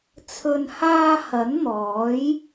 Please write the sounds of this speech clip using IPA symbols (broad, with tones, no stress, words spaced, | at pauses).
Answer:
t͡sʰɵ˨nhaː˧ hɐ˨˥nn̪ɔː˨˥j